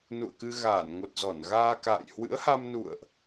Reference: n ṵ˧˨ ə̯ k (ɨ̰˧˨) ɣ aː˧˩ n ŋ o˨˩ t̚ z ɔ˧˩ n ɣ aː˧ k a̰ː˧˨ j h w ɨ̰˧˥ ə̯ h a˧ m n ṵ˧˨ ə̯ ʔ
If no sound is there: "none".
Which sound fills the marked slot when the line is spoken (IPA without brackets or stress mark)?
ɨ˧